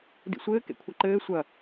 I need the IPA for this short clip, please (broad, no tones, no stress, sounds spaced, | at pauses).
d ḭ sʷ ɘː k ḛ kʷʰ ɐ ǃ ɘː sʷ ɐ